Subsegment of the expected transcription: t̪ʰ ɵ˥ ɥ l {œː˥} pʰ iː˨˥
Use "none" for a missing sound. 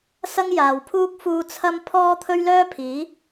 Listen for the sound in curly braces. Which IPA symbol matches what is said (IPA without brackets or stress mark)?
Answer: œː˥